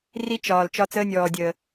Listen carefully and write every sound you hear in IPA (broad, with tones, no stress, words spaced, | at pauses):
ri˦ t͡ʃɒː˨l t͡ʃɒ˦t͡səː˦nʲɔː˨dʲəː˨